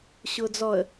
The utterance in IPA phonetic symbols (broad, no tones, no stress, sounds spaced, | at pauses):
ɕ ʊː d͡z ɔ ə̯